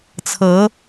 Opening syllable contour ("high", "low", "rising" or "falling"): rising